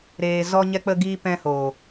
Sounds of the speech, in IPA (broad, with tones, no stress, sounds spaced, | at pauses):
ɾ eː˧ z ɔ˦ ɲ ɛ˦ k͡p ə˦ ɡ iː˦ p ɛ̃˦ h oː˨